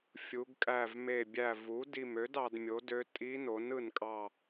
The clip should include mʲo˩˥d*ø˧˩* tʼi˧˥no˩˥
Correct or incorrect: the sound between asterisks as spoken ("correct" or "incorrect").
incorrect